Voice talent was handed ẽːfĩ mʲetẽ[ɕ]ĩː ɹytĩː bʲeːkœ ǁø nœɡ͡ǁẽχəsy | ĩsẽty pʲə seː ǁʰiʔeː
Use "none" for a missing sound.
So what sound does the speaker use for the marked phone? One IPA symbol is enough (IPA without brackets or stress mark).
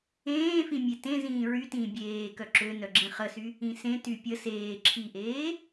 z